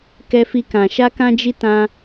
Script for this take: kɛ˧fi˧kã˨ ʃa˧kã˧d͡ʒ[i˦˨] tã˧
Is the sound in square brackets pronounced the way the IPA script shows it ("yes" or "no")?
no